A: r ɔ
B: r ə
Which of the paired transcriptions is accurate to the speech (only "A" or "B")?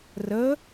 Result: B